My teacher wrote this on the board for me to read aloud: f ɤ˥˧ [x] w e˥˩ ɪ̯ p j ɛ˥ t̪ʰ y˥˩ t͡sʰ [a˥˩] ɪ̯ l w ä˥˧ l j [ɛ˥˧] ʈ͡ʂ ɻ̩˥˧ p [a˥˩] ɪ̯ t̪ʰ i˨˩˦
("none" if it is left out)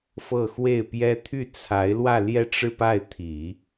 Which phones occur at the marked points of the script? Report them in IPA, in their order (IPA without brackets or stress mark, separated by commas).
x, a˧˥, ɛ˥˧, a˥˩